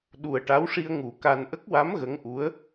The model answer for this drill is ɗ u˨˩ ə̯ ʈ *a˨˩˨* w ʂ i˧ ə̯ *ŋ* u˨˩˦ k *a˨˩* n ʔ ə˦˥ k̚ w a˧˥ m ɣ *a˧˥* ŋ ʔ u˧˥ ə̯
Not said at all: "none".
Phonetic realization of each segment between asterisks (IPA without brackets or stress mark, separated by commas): a˧˥, ŋ, a˧, ə˧˥